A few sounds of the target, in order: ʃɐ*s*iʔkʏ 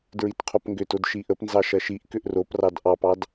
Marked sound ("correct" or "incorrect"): incorrect